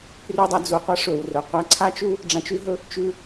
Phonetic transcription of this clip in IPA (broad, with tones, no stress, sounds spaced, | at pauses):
p r ʉ˧ dˤ ɐ˧ d͡z u˩ qʷ ɐ˥ ʂ ɵ˩ w r ɵ˩ qʷ a˧ ǀʰ a˥ t͡ʃ u˥ | ɖ͡ʐ ã˧ t͡ʃ ʉ˥ ɦ ɵ˥ | t͡ʃ ʉ˧